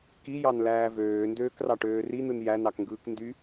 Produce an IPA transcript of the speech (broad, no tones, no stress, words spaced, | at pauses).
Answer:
kijɑnlæː vøːndøːkrɑʈøː rin̪ɯn jænɑkŋɡɯːk ndy